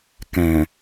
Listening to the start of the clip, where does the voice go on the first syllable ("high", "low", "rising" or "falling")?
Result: low